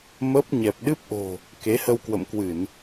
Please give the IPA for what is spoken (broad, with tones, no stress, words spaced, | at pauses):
mə˦˥p̚ ɲɛ˨˩p̚ɗɨ˦˥p̚ʔo̤˨˩ | ke˨˦hə˧wkwə̰˧˨mkwɨ˧˩˨n